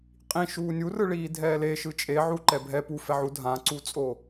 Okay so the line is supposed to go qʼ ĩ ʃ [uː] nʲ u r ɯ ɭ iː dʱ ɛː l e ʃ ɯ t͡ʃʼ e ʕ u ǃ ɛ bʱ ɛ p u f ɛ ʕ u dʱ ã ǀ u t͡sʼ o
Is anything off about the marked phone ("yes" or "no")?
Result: no